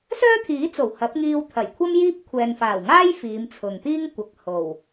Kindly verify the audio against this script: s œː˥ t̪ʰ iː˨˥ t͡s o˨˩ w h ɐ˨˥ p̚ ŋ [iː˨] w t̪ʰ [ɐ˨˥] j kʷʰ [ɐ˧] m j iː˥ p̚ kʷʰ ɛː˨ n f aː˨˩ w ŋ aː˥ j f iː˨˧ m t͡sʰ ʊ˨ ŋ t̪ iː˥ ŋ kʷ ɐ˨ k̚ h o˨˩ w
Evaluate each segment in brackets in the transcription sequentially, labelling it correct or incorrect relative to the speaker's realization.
incorrect: iː˧, incorrect: ɐ˨˩, incorrect: ɐ˥

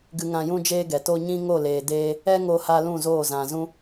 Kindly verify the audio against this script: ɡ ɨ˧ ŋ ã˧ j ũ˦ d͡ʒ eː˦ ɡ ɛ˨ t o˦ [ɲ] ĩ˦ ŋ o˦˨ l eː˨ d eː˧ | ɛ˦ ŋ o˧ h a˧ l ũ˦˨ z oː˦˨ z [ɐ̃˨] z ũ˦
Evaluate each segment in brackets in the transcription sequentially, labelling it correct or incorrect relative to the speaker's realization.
correct, incorrect: ã˨

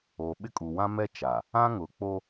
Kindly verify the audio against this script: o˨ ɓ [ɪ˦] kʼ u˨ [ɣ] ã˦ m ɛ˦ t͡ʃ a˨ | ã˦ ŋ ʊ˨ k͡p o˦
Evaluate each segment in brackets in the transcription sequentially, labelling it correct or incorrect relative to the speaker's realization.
incorrect: ɪ˦˨, incorrect: w

